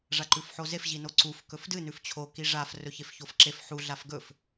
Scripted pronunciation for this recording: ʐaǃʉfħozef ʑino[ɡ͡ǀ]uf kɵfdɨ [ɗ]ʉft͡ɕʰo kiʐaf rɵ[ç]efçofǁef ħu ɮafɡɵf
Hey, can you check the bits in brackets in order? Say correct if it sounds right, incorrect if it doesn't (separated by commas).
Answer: incorrect, incorrect, correct